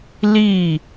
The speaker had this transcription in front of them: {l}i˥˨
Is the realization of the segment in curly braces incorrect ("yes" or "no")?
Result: no